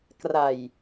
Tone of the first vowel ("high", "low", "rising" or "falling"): low